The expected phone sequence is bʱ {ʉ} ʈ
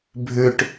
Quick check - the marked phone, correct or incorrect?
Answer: correct